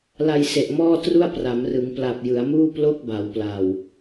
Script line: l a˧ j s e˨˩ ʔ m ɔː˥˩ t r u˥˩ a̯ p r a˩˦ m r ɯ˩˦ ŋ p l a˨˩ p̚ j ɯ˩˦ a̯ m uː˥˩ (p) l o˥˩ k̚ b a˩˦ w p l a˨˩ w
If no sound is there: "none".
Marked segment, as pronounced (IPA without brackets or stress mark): p